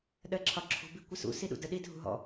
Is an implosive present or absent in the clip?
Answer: present